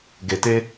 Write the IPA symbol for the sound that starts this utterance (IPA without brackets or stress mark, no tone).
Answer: ɡ